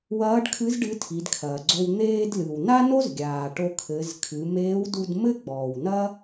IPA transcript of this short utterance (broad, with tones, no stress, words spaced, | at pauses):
wɐː˧˥ɖkʰɨ˧˥z ɖɨ˧˥tʰi˩˧dkʰɐː˩ɡ͡ǀo˧w n̪eː˧dlɨ˩w na˥no˥z ɡʲaː˩ʈo˧kʰɘ˩˧z kʰɨ˩˧ meː˧˥wdu˧d mɘ˥ɡ͡bɔː˩w nɐ˥